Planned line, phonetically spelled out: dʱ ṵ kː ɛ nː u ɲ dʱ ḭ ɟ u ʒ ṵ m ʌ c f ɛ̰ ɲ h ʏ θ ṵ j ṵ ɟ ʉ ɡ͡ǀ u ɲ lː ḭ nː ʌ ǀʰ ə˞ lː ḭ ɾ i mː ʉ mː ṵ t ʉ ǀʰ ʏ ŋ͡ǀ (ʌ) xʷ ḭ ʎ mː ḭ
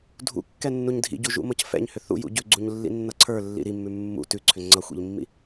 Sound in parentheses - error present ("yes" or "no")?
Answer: no